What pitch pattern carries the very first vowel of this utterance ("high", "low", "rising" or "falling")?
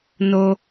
high